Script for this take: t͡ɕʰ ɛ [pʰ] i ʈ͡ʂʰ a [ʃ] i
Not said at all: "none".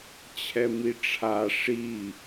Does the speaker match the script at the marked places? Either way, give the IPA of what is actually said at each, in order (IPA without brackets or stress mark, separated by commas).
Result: m, ʂ